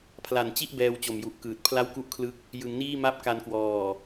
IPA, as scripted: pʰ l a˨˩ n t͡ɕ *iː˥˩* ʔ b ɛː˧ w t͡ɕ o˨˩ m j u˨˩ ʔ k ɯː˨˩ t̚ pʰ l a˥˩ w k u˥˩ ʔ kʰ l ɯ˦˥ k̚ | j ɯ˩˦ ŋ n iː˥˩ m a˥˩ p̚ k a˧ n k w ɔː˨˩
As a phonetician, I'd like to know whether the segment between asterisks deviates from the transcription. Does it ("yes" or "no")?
yes